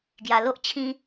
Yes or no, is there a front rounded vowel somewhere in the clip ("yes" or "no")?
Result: no